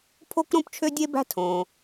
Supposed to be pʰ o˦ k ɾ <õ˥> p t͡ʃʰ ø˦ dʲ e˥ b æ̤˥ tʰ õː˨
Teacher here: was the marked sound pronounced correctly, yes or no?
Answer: no